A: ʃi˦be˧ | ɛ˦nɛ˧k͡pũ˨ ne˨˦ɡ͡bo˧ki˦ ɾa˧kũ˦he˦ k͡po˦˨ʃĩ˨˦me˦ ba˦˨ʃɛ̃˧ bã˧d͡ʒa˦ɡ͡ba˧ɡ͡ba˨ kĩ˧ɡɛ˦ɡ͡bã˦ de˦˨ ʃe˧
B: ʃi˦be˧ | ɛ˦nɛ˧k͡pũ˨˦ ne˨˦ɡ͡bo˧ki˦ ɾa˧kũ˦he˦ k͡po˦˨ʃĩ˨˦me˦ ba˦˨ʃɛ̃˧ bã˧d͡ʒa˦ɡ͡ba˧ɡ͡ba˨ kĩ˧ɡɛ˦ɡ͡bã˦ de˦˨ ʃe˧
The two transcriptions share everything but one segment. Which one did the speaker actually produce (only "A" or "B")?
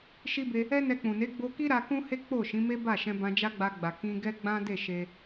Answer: A